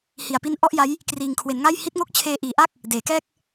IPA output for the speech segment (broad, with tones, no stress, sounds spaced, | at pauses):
h i˨˩ a̯ p i˦˥ n ʔ ɔ˥˩ ʔ j a˦˥ j | k r iː˨˩ ŋ kʰ w e˩˦ n ŋ a˥˩ j h i˦˥ t̚ ŋ o˦˥ k̚ t͡ɕʰ eː˧ ʔ iː˨˩ ʔ a˥˩ k̚ | d eː˩˦ k ɛː˥˩ k̚